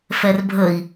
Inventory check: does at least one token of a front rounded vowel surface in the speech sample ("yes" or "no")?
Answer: no